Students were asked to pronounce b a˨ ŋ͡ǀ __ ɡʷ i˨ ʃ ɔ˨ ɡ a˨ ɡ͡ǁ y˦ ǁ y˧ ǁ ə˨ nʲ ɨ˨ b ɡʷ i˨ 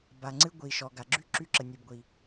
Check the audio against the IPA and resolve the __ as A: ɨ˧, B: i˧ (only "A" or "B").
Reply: A